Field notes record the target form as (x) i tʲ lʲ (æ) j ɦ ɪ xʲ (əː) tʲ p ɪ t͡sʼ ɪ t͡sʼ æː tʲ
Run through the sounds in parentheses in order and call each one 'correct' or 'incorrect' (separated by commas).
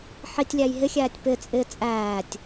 incorrect, correct, incorrect